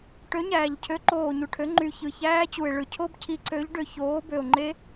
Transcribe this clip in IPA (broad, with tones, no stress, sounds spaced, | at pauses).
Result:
ʈ ø˨˥ ɲ æː˨˩ ʎ cʰ ø˨˥ ǃ oː˨˩ ɲ u˨˩ ʈʰ ø˨˥ ŋ͡ǃ y˨˩ ç ɯ˨˩ ç æː˦˥ t͡ɕ u˨˩ e̯ ɭ ɯ˨˩ cʰ o˦˥ b cʰ i˨˥ ǀ ø˨˥ ʎ ɖ ø˨˩ ç oː˨˥ b ø˨˩ o̯ ŋ͡ǃ e˦˥